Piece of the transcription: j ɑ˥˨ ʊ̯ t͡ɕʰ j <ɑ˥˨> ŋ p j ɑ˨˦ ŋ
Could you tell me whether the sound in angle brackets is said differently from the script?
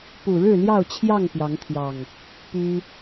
no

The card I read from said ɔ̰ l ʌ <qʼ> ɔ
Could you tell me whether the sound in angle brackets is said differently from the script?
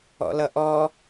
yes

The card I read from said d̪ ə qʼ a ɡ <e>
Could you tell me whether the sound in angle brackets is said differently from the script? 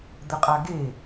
no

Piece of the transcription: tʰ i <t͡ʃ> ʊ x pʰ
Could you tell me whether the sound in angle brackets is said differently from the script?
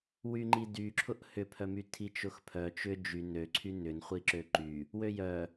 no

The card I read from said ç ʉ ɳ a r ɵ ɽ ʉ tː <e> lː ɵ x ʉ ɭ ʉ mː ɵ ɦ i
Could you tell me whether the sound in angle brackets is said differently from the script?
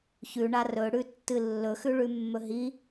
yes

